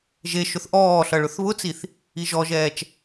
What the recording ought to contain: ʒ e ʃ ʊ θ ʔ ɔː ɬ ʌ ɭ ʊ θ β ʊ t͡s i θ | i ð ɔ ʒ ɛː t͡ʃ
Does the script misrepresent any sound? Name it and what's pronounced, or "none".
ð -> ʒ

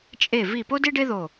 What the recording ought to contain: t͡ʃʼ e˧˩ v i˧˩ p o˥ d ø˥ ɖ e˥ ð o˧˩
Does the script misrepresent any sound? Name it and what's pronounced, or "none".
ø˥ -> e˥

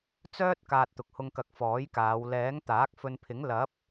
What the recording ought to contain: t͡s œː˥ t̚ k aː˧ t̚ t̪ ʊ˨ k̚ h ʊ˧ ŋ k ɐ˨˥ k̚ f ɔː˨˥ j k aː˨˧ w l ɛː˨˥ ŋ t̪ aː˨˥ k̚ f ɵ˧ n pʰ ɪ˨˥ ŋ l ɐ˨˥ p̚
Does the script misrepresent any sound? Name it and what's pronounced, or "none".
none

